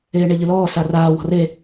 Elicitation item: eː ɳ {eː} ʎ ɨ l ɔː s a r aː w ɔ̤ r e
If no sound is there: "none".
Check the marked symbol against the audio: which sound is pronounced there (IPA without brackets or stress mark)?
e